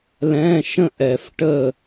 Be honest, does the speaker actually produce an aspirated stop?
no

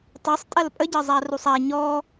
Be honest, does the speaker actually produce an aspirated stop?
no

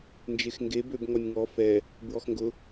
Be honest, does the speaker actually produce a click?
no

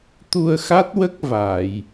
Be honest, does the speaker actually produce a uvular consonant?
no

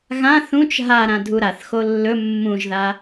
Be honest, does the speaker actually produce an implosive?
no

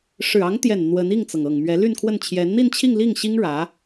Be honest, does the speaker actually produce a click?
no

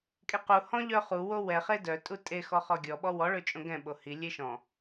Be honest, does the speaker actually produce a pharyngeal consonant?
no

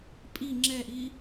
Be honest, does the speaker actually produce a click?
yes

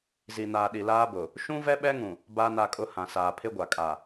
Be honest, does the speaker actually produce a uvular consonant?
no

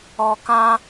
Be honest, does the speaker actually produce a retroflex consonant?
no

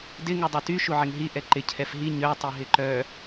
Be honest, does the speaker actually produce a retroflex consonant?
no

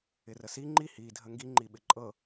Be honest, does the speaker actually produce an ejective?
yes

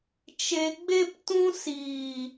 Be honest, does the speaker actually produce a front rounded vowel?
no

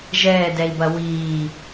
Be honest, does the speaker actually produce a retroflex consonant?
no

